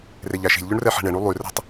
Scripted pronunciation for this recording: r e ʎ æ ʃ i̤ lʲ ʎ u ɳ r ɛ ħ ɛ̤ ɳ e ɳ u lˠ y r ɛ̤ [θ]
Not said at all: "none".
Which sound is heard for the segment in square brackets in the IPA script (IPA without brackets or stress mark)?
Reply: tˤ